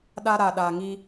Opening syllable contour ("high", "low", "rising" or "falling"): high